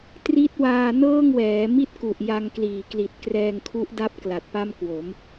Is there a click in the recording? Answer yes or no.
no